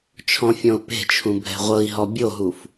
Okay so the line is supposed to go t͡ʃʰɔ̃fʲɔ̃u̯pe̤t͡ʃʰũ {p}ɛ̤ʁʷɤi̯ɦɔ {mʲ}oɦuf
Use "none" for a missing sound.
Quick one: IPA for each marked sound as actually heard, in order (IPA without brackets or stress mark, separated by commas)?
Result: bʱ, bʲ